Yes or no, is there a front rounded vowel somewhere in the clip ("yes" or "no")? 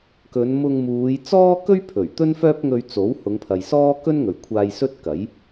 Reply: yes